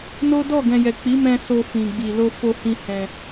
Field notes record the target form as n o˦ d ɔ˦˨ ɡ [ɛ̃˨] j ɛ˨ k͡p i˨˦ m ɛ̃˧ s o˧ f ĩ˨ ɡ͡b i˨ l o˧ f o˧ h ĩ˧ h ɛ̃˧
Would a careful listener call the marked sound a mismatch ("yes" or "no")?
no